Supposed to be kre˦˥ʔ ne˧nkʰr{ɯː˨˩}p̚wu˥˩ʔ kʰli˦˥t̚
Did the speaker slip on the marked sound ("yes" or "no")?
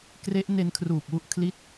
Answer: yes